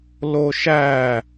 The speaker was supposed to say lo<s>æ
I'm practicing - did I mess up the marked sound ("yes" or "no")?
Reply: yes